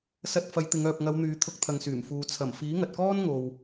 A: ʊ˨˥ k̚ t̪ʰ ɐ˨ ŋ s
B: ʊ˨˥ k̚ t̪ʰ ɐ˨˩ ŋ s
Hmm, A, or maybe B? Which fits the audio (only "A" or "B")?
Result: A